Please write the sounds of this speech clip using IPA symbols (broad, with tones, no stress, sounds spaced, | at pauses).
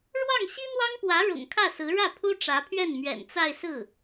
ɻ w ɑ˥˩ ŋ ɕ i˥ n̪ w ɑ˥ ŋ p w ä˧˥ ɻ ʊ̰˨˩ ŋ kʰ ä˥˩ s ɹ̩˧˥ ɻ ä˥˩ pʰ u˥ ʈ͡ʂ ä˧˥ pʰ ɥ ɛ˥˩ n m ɥ ɛ̰˨˩ n t͡s a˥˧ ɪ̯ s ɹ̩˥˩